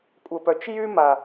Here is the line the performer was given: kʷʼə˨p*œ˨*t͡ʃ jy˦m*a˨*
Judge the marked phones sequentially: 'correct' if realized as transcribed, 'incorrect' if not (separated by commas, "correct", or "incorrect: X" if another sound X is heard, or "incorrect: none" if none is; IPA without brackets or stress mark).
correct, correct